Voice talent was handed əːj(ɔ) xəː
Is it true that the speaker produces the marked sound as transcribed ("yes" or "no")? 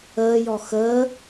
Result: yes